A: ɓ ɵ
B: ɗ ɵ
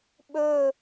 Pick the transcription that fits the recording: A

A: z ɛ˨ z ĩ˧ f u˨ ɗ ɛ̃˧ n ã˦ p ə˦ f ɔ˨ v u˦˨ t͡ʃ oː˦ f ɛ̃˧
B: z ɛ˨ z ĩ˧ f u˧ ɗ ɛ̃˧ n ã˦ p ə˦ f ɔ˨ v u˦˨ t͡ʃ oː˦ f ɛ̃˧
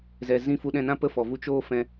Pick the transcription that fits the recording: B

